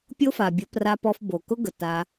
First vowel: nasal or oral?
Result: oral